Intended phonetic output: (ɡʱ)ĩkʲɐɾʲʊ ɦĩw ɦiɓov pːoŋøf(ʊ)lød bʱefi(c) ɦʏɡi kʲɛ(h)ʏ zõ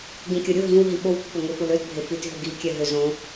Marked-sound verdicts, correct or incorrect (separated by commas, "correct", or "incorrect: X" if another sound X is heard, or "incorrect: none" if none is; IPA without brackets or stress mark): incorrect: ɡ, correct, incorrect: t, incorrect: ɦ